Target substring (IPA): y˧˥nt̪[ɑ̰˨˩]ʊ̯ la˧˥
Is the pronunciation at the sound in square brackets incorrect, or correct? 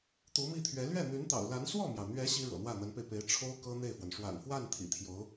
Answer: correct